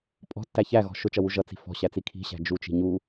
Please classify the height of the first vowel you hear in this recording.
mid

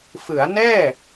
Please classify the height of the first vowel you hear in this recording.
high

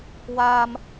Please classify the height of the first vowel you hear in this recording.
low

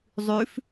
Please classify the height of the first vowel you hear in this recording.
high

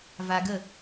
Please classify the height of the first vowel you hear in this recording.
low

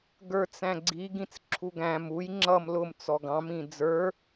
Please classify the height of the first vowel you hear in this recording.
mid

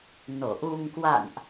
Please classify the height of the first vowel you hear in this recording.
mid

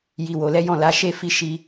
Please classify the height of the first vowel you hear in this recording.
high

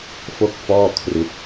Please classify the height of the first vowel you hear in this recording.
mid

